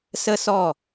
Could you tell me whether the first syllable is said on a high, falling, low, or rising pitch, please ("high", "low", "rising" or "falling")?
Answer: high